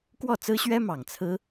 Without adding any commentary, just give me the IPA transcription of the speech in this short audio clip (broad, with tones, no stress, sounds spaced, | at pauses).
k w ɔ˥˩ t͡s ɹ̩˥ ɕ ɥ ɛ˥ m ɑ˨˩ ŋ t͡sʰ ɹ̩˥